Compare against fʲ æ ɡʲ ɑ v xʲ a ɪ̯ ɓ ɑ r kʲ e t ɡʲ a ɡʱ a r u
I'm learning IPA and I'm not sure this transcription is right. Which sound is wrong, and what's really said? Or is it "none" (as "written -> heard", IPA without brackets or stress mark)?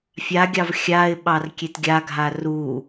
æ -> a